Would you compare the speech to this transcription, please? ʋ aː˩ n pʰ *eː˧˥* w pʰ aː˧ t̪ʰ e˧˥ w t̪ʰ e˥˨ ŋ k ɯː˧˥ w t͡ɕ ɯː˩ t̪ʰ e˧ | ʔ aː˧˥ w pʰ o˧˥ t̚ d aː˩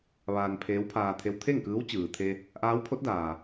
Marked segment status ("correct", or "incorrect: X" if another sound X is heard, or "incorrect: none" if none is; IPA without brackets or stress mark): correct